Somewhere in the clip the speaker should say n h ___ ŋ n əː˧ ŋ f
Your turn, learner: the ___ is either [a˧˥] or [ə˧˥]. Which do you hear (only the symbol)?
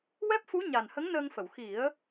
ə˧˥